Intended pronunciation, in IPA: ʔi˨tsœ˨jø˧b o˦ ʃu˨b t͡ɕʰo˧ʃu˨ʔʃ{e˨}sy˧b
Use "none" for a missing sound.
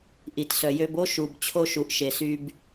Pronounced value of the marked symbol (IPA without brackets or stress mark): e˨